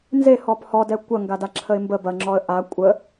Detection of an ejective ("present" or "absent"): present